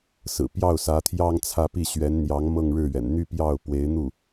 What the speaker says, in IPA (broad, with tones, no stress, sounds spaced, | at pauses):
s ɹ̩˨˩ p j ɑ˥˩ ʊ̯ s ä˧˥ t̪ʰ j ɑ˥ ŋ t͡sʰ ä˥˧ p i˥˩ ɕ ɥ ɛ˧˥ n n̪ j ɑ˧˥ ŋ m ɤ˥˧ ŋ ɻ ɻ̩˥˩ ɥ ɛ̰˨˩ n n̪ y˥˧ p j ɑ˥˩ ʊ̯ p w e˧˥ ɪ̯ n̪ u˥˩